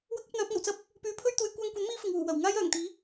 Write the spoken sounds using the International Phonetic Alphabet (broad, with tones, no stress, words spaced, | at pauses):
wɐ˥k̚ɐ˨˥p̚n̪œː˨˥p̚ŋɐ˨˩w t͡sɐ˥p̚ | pyː˨˥pʰɵ˥ɥt̪uː˨˧j kʷaː˧ŋkʷɐ˨˥n miː˥fɪ˨ŋwuː˨˩ wɐ˨˩w ŋaː˥jœː˨˩ŋt̪iː˨˥